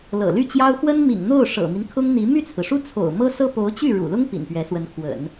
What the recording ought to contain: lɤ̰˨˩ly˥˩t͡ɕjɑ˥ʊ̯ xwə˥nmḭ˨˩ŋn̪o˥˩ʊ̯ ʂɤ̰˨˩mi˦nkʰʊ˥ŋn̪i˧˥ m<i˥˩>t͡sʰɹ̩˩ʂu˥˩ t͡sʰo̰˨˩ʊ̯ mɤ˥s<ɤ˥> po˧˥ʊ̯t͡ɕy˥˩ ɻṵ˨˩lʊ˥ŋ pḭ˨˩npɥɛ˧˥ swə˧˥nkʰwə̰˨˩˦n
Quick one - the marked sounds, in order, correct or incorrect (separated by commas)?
incorrect, correct